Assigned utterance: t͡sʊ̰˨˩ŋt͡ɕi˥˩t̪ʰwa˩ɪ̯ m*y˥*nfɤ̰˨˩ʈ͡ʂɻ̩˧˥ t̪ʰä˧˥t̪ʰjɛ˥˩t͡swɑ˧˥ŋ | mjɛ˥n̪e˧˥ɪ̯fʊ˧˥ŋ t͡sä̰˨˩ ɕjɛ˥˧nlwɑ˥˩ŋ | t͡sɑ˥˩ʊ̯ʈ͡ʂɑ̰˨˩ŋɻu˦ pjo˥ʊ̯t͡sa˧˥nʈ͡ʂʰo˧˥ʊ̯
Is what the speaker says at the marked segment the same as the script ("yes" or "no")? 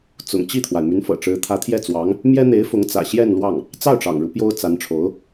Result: no